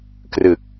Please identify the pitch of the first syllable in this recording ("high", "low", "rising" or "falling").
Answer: low